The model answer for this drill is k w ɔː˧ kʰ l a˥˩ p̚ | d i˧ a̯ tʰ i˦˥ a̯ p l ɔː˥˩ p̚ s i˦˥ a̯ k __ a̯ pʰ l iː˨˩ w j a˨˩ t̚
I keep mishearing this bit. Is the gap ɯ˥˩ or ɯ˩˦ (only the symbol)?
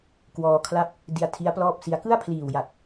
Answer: ɯ˥˩